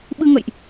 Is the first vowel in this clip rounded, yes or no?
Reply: no